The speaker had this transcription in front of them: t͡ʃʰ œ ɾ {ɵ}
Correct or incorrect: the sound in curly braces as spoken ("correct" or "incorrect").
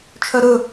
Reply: correct